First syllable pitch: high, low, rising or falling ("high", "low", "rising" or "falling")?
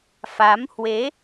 rising